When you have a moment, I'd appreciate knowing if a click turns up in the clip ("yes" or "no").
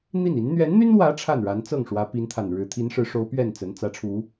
no